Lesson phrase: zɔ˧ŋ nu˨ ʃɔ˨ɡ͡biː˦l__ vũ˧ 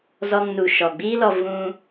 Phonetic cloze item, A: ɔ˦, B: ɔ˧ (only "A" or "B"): B